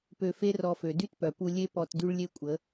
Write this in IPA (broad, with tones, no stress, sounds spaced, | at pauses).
p ø˧ f e˦ r ɔ˧ f ø˨ d y˦ t p œ˨ p u˧ lʲ e˦ p ɔ˧ t d y˦ ɭ lʲ e˦ kʷʼ ə˨˦